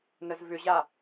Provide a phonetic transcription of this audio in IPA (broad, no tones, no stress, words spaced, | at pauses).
nəzvʏʑa